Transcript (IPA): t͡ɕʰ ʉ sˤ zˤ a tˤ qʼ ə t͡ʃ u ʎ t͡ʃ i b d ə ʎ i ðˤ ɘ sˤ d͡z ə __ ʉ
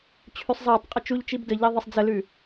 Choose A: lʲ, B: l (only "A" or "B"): B